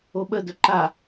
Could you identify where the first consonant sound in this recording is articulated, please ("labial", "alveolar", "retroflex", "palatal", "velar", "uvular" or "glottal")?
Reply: labial